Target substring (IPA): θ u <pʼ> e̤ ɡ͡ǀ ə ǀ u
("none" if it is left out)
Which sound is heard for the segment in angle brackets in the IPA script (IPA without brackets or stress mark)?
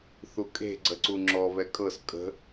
kʼ